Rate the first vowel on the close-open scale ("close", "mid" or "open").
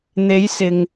mid